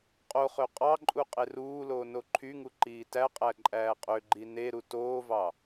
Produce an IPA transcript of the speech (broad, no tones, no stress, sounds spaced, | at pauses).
qʼ o χ ø qʼ ɑ ǃʼ u qʼ e r uː l oː n o ǃʰ y ŋ u ǃ iː t æ qʼ æ ǃʼ æː qʼ ø ɡ͡ǃ i n e ɾ u t oː v ɑ